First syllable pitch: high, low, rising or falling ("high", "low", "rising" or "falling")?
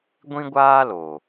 high